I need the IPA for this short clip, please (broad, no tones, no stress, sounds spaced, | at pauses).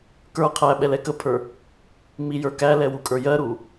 k ə˞ qʰ æ ɓ ɛ l ɛ k ə pʰ ə˞ | m i j ə˞ k æ l ɛ w u kʼ ə˞ j ɜ ɾ u